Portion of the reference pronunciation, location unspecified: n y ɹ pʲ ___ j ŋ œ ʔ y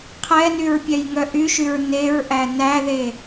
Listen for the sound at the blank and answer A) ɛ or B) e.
A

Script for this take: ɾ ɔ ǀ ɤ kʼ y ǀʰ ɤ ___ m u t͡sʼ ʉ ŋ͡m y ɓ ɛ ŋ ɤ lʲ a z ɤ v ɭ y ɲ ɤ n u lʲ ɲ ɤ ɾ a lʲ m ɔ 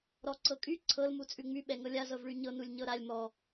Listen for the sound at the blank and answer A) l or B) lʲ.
A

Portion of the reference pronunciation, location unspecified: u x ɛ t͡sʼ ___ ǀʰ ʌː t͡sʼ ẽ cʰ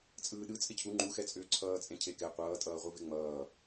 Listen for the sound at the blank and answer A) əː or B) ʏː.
B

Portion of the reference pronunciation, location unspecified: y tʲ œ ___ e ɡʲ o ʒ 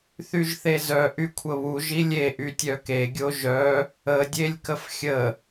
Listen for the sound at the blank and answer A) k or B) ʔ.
A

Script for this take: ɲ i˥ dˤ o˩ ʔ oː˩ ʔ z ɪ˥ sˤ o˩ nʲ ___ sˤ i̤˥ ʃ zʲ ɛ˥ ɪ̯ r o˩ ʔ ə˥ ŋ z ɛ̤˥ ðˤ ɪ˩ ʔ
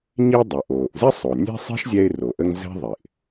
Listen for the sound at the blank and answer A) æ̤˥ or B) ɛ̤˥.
B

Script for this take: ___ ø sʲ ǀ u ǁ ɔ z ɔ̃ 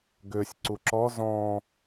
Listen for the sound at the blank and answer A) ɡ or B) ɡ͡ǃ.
A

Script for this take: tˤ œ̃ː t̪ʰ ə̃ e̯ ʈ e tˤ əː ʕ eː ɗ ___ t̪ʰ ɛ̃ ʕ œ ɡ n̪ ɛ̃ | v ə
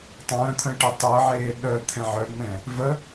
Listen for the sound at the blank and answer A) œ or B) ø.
A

